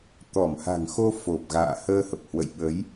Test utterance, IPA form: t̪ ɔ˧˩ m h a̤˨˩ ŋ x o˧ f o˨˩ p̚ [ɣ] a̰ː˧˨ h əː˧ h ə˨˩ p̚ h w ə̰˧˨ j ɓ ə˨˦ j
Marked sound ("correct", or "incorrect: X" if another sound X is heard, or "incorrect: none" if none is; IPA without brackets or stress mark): correct